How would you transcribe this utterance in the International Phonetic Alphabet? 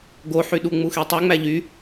ɡ o ħ y ɗ u ŋ͡m u x e tˤ u ŋ͡m æ ʎ y

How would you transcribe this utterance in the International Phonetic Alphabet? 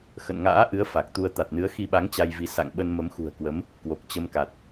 x ə̰˧˨ n ŋ a̰ː˧˥ ʔ ɨ˨˦ ə̯ f a˨˩ k̚ t̪ u˧ ə̯ t̪ a˨˩ t̚ n ɨ˨˦ ə̯ x i˧ ɓ a˨˦ ŋ t͡ɕ a˧ j v i˨˦ s a̰˧˨ ŋ ɓ ə˧ n m ə˨˦ m x ṳ˨˩ ə̯ k w ə˨˦ m | k w o˨˩ k̚ t͡ɕ ə˧ m k a˨˩ t̚

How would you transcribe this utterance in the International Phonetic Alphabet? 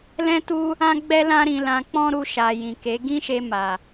l ɛ̃˦ t u˦ | ã˦ ɡ͡b ɛ˦ l ã˦ ɾ ĩ˧ l ã˧ k͡p ɔ̃˦ ɾ u˧ ʃ a˨ j ĩ˨ k e˨˦ ɡ ĩ˦ ʃ e˧ m a˨

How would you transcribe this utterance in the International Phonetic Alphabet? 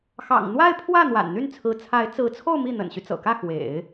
x ɑ̰˨˩ ŋ n̪ w a˥˧ ɪ̯ pʰ w ä˥˩ n̪ w a̰˨˩ n n̪ y˥˩ n t͡sʰ ɹ̩˧˥ t͡sʰ a˧˥ ɪ̯ t͡s ɹ̩˧˥ t͡sʰ o˥˧ ʊ̯ m i˥˩ n̪ ə̰˨˩ n ɕ y˦ t͡s ɤ̰˨˩ k ä˥˩ x w ḛ˨˩˦ ɪ̯

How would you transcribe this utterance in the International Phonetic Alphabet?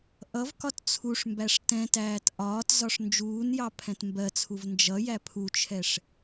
ʔ ʌ v k ɒ t t͡sʰ u ʂ m b æ ʂ t ɛ̃ t æː t ʔ ɒː t z ɒ ʂ n d͡ʒ uː n j ɑ pʰ ɛ̃ t m b ɜ t͡sʰ u v n d͡ʒ ʌ j æ pʰ u t͡ʃʰ ɛ ʂ

